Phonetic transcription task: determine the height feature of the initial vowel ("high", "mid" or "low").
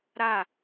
low